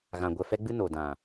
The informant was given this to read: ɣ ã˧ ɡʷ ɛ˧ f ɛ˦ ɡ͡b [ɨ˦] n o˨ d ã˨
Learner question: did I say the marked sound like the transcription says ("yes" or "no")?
yes